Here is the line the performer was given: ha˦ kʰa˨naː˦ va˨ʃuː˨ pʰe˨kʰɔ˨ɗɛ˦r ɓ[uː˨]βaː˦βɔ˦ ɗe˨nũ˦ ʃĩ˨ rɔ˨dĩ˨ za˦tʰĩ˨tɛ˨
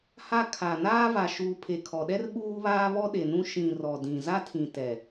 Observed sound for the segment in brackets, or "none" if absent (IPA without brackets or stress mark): uː˦